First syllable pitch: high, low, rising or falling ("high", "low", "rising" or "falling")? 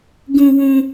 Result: high